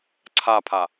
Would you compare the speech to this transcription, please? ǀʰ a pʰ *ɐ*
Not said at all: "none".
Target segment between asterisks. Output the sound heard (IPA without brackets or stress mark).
a